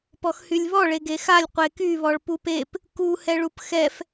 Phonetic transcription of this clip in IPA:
p ɔ x h y lʲ β ɔ ɭ e ɡ e x a lʲ qʷ e k y β ɔ ɭ p u p e p | k u h ɛ ɭ u p x ɛ f

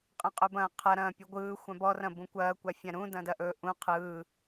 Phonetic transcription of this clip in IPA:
qʼ ɐ̃ qʼ ɵ b ɐ̃ː qʰ ɐ ɾ ɐ̃ː pʲ u ɡʷ ɯː xʷ ã b ɔ r ɐ̃ b ũ kʷ ɐː kʷ a fʲ ã ɾ ũ d ɐ̃ d ɐ ʔ ɵ ʔ ũ qʰ ɯː

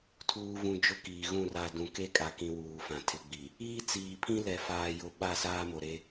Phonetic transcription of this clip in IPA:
tʰ uː˨ v ũ˨ d͡ʒ ʊ˦ k iː˨ ɣ ũ˦˨ r a˨ d ũ˨ k e˦ kʼ a˨ k ĩ˨ w uː˨ f ã˨ tʰ ɪ˨ ɡ͡b i˨ | iː˦ t͡s iː˨ pʰ ĩ˦ l ɛ˨ f aː˨ j ʊ˨ ɓ a˦˨ s aː˦ m o˨ ɾ e˦

